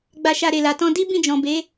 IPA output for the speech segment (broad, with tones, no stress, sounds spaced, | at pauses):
ɡ͡b a˧ ʃ a˧ ɾ e˨ l a˨ t ɔ̃˧ d i˦ b ĩ˦˨ d͡ʒ ɔ̃˨ b e˨˦